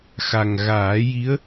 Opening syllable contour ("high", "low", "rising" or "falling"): low